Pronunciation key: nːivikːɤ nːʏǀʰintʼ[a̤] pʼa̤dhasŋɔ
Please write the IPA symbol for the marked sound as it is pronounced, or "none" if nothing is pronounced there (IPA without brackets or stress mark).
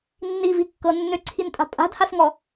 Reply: a̤